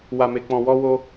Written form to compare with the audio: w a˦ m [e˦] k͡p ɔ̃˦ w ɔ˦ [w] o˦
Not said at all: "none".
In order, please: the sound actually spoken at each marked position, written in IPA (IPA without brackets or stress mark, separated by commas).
e˦, w